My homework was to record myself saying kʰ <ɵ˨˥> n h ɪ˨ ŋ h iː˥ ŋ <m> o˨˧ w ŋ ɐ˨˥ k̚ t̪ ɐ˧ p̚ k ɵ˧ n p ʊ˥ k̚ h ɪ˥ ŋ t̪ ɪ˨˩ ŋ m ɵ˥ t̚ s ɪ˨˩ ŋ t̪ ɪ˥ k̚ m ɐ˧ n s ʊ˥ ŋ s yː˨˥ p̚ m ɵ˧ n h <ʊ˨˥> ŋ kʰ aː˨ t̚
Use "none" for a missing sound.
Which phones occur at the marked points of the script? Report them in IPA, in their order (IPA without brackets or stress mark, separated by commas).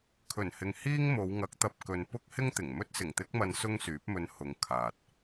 ɵ˨˩, m, ʊ˨˧